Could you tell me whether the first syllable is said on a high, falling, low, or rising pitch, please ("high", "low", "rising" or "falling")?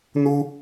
high